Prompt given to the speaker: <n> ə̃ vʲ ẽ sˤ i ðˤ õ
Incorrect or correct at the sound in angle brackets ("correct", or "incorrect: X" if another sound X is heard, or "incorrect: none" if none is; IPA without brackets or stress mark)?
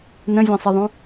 correct